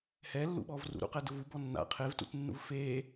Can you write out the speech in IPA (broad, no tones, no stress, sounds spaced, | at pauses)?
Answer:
h ɛ lː ṵ ɓ ɔ v r ṵ ɾ ṵ q ɛ d ʊ v u b ɔ nː a̰ qʰ e v t ṵ t nː ṵ v f e